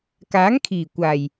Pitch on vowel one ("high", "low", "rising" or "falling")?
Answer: rising